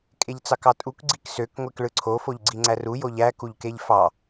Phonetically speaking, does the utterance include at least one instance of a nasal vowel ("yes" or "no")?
no